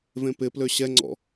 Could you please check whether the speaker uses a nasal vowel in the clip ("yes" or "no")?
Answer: yes